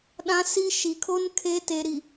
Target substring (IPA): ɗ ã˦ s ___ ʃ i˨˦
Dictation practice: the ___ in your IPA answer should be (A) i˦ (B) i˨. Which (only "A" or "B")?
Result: A